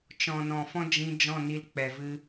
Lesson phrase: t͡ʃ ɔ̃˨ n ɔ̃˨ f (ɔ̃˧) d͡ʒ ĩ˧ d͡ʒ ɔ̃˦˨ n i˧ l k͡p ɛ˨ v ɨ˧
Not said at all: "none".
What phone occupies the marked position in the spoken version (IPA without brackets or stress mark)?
ɔ̃˦